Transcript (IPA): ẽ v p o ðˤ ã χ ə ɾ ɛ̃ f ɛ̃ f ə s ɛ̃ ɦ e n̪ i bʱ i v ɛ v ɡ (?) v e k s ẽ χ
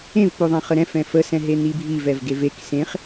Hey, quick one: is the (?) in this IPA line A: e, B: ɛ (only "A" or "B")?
A